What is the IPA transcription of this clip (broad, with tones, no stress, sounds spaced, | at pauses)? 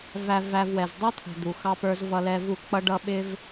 v æ˧ v æ˧ v w ɛ˨ z dˤ ʌ˦ t̪ʰ ə̤˨ d̪ u˨ x ɑ˦ p ə˞˦ z v ʌ˧ l ɛ˧ v u˦˨ k͡p ʌ˦ ɖ ʌ˦ ɓ ɪ˦ v